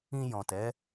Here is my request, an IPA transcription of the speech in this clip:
ĩ˧ jɔ̃˨tɛ˨˦

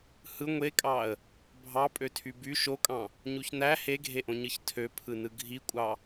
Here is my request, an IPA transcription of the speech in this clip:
hɯ ŋʷekʼɑə̯ | bʱɑpʼøtʰy by ʃokʼɑ̃ | ɲuçnæ heɡʱeʔõɲɯç tʰøpʰɯnɯ ɡʱikʷʼɑ

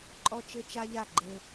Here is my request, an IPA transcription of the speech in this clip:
ǃʼɔ˦t͡ʃɘ˦t͡ʃa˦ʎa˦˨ ɡ͡ǃɘ˦

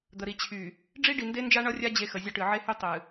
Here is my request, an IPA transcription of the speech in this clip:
d̪ə˨ɾi˨ t͡ɕʰy˨ | ɖ͡ʐi˦ɖi˨nde˦nd͡ʒa˦ ɳʌ˦rʲa˦ d͡ʑe˦xə˨zʲʌ˦ʈɨ˨ ʕe˦hy˦ tˤɨ˨

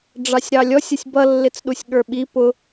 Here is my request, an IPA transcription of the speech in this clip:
ɖ͡ʐɑsʲɾɑlʲɔsʲ ʌsʲbʌlːɪt͡sɗusʲ ɠə˞ɓi pʊ

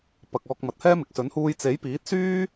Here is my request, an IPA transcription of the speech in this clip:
pɐ˨k̚ ɔː˧k̚mɐ˨t̚hɛː˥mɪ˨˥k̚ sɵ˨˥nhuː˧j t͡se˨˥jpiː˨˥t̚ syː˥

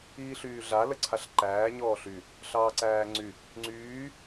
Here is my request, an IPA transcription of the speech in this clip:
iːɬyːɮa ləǀʰaɬǃæː ɲɔːɬy | ɬɑːǀæːŋ͡ǀy | ŋ͡ǀyː

